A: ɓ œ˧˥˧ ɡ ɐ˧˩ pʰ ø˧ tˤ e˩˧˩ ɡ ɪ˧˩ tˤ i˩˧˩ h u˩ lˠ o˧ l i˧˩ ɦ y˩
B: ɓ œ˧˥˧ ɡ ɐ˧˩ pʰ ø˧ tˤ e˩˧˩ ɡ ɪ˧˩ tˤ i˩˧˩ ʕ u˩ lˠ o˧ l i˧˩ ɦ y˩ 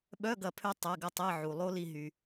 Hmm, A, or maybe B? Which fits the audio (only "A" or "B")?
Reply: B